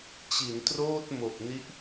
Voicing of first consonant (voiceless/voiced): voiceless